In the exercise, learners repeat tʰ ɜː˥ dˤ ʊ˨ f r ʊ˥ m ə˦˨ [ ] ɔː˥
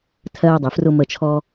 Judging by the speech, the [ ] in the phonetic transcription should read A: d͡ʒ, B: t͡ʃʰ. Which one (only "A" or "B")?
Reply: B